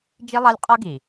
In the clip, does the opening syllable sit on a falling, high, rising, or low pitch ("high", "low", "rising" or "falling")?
high